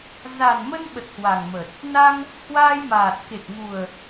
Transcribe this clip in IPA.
z a˨˩ n m ə˧ n ɓ ə˨˩ t̚ h w a˨˩ ŋ m ə˨˩ t̚ | n a˧ ŋ | h w aː˧ j m aː˨˩ t̚ k e˨˩ k̚ ŋ u˨˩ ə̯

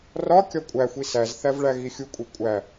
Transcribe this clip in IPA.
r ɒ kʲ ɒ kʷʼ æ xʷ i s æ z θ æ v ɭ æ ɣ i xʲ u kʷʼ e kʷʼ æ

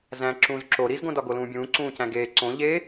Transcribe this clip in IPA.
z æ̃ ǁ ũː z ǁ o ɾ i z ɡ õ d ɒ ɡ o l ũː bʲ ũː ǀ ũː c æ̃ ɡ eː ǀ õ ʎ eː

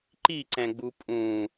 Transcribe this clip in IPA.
ǃ i ǀ ɛ̃ ɡ͡b u pʼ ũ

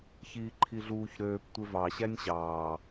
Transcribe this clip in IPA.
ç iː ǃʰ i ɮ uː ç ɾ øː p tʷ e v ɑ ɕ æ nʲ ɕ ɑː

